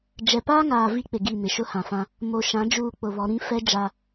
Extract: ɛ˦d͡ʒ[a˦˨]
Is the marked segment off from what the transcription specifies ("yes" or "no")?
yes